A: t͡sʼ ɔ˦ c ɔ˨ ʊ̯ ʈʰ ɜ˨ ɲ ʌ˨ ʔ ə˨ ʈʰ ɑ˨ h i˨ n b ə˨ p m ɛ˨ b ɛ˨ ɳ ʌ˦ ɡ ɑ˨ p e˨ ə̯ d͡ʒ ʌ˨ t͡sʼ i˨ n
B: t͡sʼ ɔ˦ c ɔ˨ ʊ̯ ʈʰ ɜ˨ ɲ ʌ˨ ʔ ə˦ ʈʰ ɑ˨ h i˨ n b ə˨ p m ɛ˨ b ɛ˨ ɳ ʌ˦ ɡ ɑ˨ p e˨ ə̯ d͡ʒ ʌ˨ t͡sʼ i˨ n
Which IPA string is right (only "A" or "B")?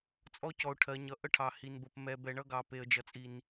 B